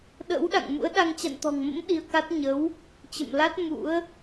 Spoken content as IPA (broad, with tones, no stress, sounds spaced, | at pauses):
ɗ ə̰˧˥ w ɗ a̰˧˨ ŋ m ṵ˧˥ ə̯ ɗ a˧ ŋ t͡ɕ a̰˧˨ n t̪ ɔ̤˨˩ ŋ m ə̰˧˥ m ɗ i˧ ə̯ k a˦˥ t̚ ɲ ə˨˦ w | t͡ɕ ə̰˧˨ m l a˦˥ t̚ m ṵ˧˥ ə̯